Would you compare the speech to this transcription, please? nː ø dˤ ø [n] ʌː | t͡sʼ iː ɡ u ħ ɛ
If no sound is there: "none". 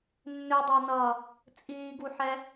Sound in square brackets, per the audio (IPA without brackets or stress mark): n